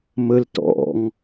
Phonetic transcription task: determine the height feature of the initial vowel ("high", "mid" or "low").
mid